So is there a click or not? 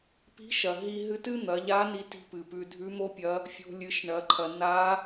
yes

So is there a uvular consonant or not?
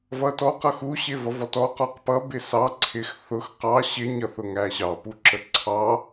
yes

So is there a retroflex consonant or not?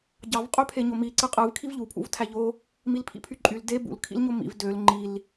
no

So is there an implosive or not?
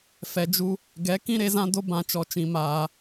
no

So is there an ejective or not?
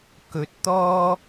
no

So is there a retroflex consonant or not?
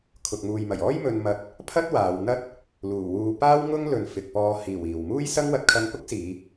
no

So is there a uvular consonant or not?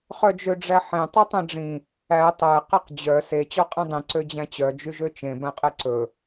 yes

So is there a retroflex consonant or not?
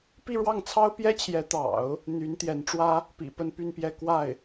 yes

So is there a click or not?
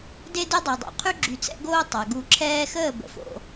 yes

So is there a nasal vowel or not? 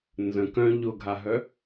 yes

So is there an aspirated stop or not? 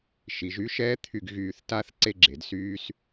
yes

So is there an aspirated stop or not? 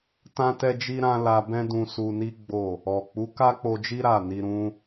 no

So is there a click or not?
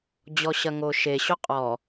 no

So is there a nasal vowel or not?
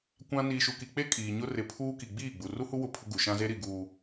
yes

